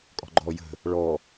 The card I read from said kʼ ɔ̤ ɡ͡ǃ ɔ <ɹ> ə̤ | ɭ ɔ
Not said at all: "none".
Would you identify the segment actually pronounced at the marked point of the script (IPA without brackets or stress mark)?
j